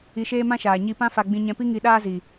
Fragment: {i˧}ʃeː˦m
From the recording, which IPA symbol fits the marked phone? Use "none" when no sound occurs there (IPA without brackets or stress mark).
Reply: i˧